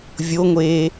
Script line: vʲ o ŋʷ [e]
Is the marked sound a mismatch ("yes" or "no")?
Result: yes